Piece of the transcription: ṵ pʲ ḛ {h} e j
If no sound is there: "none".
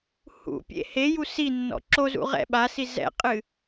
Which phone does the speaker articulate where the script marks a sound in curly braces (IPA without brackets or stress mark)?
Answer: h